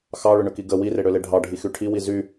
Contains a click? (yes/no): no